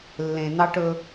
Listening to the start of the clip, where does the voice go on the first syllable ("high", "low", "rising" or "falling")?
low